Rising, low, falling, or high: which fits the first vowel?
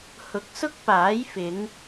rising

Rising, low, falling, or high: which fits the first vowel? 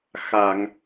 low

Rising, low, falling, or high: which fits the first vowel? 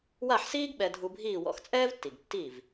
falling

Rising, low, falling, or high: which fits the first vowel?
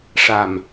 low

